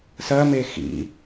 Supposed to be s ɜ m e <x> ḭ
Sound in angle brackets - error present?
no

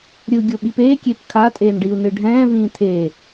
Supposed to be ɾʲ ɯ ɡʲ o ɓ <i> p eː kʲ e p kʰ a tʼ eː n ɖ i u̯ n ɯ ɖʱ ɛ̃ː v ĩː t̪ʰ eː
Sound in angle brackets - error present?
no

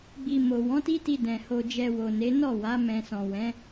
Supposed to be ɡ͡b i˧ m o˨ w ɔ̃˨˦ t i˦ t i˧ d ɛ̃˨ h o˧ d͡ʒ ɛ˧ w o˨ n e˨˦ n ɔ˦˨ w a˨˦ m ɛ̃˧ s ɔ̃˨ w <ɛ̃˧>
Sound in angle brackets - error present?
yes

